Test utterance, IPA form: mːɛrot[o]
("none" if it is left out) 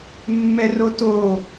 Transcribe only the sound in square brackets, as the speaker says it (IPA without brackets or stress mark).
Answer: o